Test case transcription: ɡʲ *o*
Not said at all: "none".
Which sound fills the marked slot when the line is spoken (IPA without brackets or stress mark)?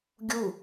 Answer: u